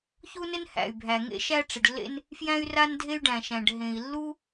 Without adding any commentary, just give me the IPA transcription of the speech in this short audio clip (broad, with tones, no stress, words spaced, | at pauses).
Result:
çu˥nɪ˥n hæ̰˩y̯bʱæ˩ ŋḛ˥ʃæ˥ʈ͡ʂɪ˩ɖlːḛ˥n | fjæ̃˥y̯ra˥ndʱe˥y̯ɖæ̃˩ ʃæ̃˩ɖ ɦẽ˩i̯lːu˥